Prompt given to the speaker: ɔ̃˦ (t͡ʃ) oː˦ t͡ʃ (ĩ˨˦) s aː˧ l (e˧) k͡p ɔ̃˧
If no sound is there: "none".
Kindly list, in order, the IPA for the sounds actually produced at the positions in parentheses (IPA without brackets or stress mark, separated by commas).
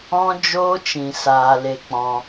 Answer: d͡ʒ, ĩ˧, e˧